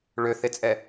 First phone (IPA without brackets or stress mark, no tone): ɭ